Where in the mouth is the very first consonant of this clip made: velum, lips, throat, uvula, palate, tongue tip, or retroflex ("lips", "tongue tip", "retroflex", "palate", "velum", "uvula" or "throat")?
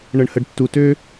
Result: retroflex